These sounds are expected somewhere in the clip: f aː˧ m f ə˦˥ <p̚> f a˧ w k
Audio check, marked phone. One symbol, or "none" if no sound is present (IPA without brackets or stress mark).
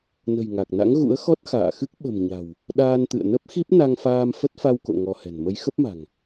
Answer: t̚